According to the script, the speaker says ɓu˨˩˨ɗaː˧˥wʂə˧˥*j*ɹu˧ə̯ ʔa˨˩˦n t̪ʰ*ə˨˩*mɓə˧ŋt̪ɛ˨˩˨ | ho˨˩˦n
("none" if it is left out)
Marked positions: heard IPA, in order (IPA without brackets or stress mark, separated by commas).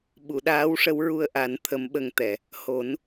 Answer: w, ə˧˥